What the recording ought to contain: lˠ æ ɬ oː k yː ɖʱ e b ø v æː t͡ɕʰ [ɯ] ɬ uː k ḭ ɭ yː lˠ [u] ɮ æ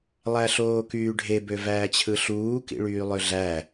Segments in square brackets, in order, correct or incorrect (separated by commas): correct, incorrect